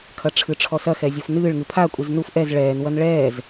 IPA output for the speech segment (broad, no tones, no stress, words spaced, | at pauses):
kʰɐʈ͡ʂʰɨʈ͡ʂʰɔsɐ xɛzʲofnɨːɭ ŋɨpʰa kʷʼɨznuf ʔɛz ɭɛːn wɐnɭɛːz